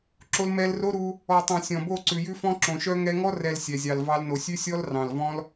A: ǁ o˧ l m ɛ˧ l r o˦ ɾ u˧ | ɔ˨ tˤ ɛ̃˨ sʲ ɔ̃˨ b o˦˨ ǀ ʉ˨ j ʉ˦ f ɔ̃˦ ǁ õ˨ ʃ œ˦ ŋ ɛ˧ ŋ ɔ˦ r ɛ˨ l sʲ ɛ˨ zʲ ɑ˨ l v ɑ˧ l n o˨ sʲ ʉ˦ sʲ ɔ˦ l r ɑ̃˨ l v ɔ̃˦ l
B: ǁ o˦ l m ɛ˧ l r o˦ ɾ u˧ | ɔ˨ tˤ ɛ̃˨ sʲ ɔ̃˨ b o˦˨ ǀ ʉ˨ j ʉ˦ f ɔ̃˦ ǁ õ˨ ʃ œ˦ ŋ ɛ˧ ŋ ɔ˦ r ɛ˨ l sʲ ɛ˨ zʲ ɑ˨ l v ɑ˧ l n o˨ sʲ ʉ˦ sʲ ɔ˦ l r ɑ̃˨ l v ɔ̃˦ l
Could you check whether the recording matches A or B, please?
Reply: A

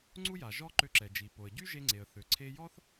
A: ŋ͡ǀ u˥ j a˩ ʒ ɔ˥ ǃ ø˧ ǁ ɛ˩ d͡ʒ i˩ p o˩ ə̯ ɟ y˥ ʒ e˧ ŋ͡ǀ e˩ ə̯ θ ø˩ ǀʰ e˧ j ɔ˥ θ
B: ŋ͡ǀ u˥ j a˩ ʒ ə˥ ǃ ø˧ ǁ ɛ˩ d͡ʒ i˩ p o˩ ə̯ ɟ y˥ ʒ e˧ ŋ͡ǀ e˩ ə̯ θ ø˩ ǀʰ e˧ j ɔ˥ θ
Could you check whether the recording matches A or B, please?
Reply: A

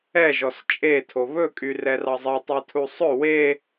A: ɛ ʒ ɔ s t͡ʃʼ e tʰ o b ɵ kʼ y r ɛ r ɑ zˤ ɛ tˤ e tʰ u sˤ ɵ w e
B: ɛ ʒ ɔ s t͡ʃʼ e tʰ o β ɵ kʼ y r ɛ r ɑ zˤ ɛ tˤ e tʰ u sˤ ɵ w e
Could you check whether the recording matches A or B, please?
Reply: B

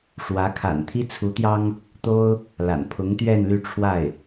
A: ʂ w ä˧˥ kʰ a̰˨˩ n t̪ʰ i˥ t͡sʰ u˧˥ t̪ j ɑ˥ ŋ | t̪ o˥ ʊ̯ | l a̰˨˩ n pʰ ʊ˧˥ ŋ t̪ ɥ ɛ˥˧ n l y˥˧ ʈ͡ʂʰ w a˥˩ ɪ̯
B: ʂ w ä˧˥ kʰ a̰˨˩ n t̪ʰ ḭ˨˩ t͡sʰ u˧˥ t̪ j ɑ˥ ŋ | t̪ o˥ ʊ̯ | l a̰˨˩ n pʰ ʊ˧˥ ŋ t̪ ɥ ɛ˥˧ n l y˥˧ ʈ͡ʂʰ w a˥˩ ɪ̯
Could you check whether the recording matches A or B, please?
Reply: A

